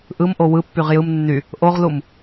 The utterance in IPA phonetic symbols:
ʔ ɯ m ʔ o w ɯ pː y ʁ j ɯ m nː y | ʔ o ʁ l u m

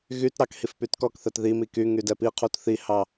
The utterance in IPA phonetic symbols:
ɣ y t ɾ ɑ k h i f p y t k ɔ k θ ɛ t ð i m i k y ŋ y d ɛ p i qʰ u t θ i h ɑ

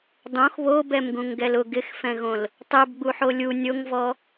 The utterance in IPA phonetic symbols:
dˤ õ x β o b ɛ m ɡ ũ ŋ ɡ ɛ l ʊ ɡ ɪ x f ɛ̃ ɣ õ l | tˤ ɛ b ɡ͡b u ħ o lʲ u nʲ o ŋ v ɔ

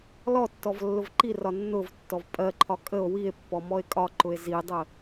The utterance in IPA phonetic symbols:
l ɔ tː ɔ v lː ʊ v ǃ i r ɒ nː ʊ v tː ɔ v pʼ ɜ ǃʰ ɒ kʼ ə o̯ w i e̯ pː ɔ m ɔ e̯ kʼ ɒ ǃ ʊ e̯ z i dˤ ə

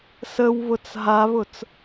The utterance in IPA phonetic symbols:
s ə w β ʊ t͡s ɦ a β ʊ t͡s

